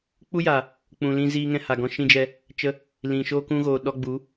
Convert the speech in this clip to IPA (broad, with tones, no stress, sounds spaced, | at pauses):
k͡p u˦ j a˨ | k͡p ũ˨ l ĩ˧ z iː˧ ŋ ɛ̃˧ h a˨ ɡ ɔ̃˧ ʃ ĩ˧ d͡ʒ ɛ˧ | t͡ʃ ə˦ | l ĩ˨ ʃ oː˧ k ũ˧ ɣ oː˨ ɗ ɔ˧ ɡ͡b u˨˦